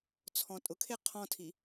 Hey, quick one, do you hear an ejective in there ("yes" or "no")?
yes